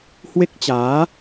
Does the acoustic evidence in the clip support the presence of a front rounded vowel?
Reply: no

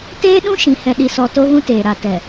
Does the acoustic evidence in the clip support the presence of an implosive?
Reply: yes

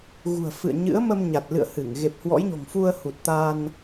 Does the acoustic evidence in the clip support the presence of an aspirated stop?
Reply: no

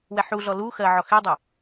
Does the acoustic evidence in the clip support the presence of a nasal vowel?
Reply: no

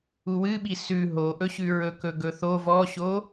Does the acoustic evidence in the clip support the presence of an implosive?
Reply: yes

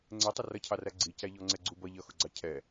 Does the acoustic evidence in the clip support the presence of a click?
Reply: yes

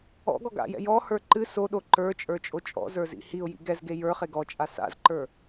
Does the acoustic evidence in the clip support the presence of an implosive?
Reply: yes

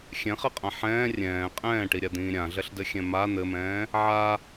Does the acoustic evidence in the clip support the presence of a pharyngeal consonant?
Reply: yes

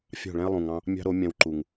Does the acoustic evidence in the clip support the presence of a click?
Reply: yes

